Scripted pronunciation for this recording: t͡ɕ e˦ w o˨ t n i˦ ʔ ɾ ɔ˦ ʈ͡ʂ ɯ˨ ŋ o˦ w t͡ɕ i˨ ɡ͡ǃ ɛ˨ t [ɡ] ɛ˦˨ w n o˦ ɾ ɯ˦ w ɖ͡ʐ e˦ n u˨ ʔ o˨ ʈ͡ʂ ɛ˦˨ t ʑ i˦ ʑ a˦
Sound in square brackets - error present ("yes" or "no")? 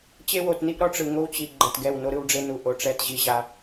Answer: no